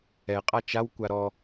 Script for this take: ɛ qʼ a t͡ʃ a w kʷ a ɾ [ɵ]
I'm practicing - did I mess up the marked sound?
yes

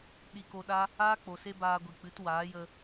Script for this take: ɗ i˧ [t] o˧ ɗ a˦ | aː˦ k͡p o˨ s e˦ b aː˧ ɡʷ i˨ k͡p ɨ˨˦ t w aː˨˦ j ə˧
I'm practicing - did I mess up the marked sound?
yes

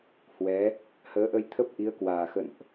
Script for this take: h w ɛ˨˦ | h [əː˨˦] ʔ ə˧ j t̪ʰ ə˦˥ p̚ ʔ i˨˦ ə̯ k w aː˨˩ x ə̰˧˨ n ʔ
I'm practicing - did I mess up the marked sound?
no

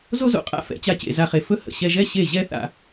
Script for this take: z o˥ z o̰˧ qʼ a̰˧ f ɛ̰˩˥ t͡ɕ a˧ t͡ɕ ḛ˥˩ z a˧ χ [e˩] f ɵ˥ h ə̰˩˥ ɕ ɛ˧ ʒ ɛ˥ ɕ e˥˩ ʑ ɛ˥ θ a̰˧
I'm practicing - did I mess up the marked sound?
no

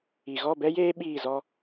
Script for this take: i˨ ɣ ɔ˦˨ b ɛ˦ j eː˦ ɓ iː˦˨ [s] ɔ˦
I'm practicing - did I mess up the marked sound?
yes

